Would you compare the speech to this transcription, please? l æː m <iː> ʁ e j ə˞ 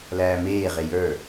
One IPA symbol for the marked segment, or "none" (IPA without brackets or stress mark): eː